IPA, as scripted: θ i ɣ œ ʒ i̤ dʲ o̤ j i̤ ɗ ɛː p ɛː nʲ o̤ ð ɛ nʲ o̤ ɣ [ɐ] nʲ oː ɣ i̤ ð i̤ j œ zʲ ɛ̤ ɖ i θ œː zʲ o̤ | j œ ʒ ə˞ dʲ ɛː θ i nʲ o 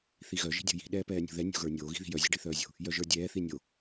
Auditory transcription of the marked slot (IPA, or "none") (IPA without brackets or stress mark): ə˞